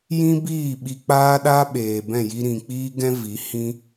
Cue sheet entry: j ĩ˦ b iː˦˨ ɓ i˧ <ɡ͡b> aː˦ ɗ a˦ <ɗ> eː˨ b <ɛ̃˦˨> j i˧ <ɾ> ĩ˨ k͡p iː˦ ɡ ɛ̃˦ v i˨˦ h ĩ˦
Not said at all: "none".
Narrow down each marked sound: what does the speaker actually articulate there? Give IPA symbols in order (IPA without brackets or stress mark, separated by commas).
k͡p, ɓ, ɛ̃˦˨, ɾ